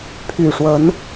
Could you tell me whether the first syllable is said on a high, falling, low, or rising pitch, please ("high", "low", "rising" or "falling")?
low